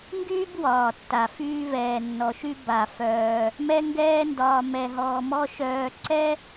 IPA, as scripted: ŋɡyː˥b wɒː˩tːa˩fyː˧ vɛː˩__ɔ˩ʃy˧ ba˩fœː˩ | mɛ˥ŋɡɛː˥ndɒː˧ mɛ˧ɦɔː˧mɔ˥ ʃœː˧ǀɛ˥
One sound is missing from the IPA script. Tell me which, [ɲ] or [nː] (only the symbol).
nː